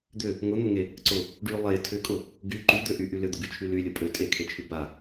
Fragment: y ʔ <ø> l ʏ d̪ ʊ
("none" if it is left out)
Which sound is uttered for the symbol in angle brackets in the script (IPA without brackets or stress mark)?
y